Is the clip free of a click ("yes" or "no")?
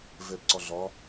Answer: no